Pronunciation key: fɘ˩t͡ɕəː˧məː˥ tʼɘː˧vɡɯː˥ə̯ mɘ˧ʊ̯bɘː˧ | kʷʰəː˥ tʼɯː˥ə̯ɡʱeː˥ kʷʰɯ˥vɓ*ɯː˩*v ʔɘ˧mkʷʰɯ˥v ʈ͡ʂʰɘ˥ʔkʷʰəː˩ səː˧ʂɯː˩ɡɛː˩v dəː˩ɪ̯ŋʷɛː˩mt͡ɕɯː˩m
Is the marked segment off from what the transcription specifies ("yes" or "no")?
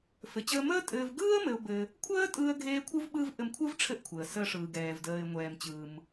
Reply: yes